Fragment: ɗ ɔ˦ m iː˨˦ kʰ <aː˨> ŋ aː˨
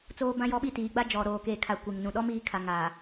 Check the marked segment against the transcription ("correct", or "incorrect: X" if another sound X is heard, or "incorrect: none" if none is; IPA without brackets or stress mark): incorrect: a˨